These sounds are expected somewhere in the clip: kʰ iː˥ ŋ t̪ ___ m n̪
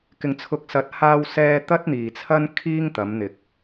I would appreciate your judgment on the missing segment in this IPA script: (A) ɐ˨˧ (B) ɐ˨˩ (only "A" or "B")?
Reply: A